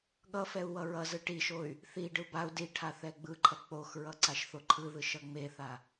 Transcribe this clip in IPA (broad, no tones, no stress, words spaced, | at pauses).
ɠʌfɛu̯ wʌɹʌzɯ ʈiʃoy̯ | θiɖɯ bau̯ diʈʰa θɛɡ͡bɯǃʰʌ k͡poxɹʌ ǀaʃθoǃʰɯðɯʃ ʌŋ͡meθa